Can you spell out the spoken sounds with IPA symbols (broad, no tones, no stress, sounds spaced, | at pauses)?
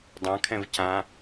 dˤ ã kʰ ɛ̃ v c ã